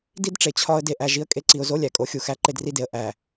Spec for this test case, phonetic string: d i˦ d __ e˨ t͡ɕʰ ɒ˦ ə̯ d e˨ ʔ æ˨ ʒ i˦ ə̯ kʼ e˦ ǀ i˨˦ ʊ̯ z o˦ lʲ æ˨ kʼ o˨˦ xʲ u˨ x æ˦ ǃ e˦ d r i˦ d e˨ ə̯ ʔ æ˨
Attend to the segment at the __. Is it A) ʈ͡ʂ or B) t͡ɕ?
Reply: A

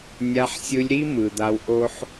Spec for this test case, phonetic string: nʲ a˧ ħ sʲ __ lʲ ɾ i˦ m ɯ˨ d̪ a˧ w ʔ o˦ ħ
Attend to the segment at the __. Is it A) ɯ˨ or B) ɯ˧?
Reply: B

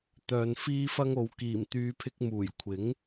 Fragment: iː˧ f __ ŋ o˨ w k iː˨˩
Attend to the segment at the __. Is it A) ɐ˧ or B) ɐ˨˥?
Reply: A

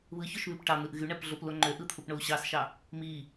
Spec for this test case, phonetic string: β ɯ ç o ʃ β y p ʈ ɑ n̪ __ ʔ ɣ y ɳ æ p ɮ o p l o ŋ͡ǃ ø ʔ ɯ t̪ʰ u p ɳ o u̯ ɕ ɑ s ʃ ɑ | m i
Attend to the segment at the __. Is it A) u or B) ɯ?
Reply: B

